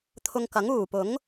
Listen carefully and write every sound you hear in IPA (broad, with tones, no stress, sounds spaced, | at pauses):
t̪ʰ ʊ˧ ŋ k ɐ˨˥ ŋ uː˨˩ p ʊ˨˥ ŋ